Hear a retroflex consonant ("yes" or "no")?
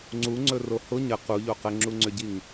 no